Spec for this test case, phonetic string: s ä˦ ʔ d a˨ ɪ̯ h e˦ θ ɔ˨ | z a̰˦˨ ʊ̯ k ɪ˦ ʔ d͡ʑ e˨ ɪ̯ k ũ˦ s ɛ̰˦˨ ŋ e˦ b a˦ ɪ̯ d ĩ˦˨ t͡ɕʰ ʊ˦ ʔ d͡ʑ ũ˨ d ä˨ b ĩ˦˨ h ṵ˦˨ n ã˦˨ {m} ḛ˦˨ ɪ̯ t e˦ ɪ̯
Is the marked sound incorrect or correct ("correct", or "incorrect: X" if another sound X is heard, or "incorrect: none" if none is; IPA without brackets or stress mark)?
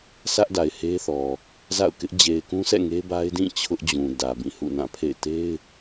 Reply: incorrect: pʰ